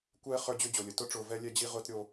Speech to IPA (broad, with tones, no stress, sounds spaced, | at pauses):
kʷ ɛː˦ χ ə˞˦ d͡ʑ ʏː˦ d͡ʑ o˨ lʲ ə˨ t ʊ˦ ʈ͡ʂ ʊː˨ v ɛ˦ lʲ ɛ˦ d͡ʑ i˦ ʁ ʊː˦ t ɾʲ o˦